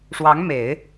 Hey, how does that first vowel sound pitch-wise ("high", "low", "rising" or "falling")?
rising